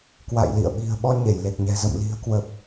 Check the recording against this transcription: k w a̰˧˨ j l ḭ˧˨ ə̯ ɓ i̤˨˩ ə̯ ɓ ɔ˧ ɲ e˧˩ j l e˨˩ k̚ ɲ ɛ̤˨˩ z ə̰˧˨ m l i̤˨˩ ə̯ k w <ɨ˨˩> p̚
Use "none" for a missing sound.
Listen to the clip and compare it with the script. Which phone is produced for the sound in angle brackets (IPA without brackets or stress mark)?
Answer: ə˨˩